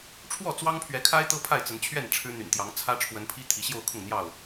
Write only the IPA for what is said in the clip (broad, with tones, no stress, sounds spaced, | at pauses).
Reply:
ʈ͡ʂʰ w ɔ˥˨ t͡s w ɑ˦ ŋ pʰ ɥ ɛ˨˦ kʰ a˦ ɪ̯ t̪ ɤ˦ pʰ a˥˨ ɪ̯ t͡s ə˨˦ n t͡ɕʰ ɥ ɛ˥˨ n ʈ͡ʂʰ ɻ̩˦ n̪ y̰˨˩ n t̪ j ɑ˨˦ ŋ t͡sʰ ä˦ ʈ͡ʂʰ w ə˨˦ n pʰ i˦ t̪ʰ i˨˦ ɕ j o˥˨ ʊ̯ kʰ ʊ˥˨ ŋ n̪ j ɑ˥˨ ʊ̯